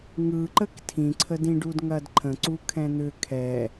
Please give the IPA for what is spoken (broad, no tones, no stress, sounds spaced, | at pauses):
ŋ ɯ ǃ ə k tʰ ĩ ǀʰ ə d ĩ ɖ u d ŋ ɐ d ǃʰ ə̃ ǀ u kʰ ɛ̃ n̪ ʏ kʰ ɛ